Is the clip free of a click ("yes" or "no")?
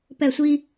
yes